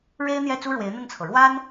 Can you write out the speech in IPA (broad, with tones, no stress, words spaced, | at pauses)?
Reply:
ɻe˥ɪ̯n̪jɛ˥˩ t͡su˥ɻwe˧˥ɪ̯n̪ə˥˩nt͡sʰɤ˩ ɻwa˥n